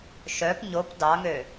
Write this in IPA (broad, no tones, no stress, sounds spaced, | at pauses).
ʃ œ p ɲ o p d ɑ ŋ ø